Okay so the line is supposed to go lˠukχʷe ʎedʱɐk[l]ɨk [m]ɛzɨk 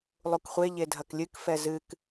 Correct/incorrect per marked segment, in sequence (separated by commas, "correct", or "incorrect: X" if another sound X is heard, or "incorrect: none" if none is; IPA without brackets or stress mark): incorrect: lʲ, incorrect: f